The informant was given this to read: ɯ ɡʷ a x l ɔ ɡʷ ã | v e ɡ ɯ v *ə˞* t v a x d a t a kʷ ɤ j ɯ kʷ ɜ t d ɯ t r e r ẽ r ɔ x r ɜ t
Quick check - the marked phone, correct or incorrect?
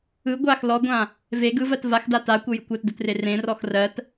incorrect